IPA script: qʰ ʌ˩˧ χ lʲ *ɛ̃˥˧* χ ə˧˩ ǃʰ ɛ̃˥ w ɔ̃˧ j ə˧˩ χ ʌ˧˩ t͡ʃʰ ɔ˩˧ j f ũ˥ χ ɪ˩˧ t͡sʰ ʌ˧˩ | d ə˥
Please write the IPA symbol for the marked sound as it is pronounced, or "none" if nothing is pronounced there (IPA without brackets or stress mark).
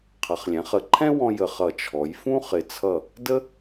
ɛ̃˩˧